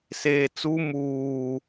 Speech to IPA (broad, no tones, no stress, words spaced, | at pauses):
seːt͡su muː